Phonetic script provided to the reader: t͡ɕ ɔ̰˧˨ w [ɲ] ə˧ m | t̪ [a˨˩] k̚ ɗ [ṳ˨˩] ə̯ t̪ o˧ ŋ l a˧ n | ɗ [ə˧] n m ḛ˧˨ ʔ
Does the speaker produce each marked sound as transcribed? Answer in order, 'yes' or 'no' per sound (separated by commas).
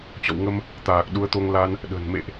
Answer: no, no, no, no